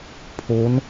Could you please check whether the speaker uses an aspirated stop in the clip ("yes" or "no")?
yes